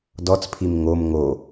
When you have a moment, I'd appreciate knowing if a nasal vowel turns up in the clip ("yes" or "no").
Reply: no